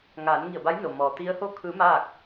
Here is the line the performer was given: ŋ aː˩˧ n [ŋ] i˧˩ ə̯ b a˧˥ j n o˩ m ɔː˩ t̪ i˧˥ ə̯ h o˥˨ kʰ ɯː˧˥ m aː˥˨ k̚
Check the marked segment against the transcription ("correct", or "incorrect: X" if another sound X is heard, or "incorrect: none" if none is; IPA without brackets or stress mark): correct